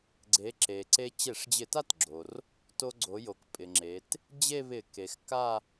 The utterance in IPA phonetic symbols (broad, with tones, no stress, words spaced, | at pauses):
ɡ͡ǀe˩˧ ǁe˩ǀe˧ t͡ɕe˧˩˧ʂd͡ʑɪ˧˩˧ta˥˧tɡ͡ǁo˩r | to˧ɡ͡ǀo˩˧ jo˩kpʼɪ˩ŋ͡ǁe˩˧t | d͡ʑe˥˧βɪ˧˩˧ ke˩x ka˥˧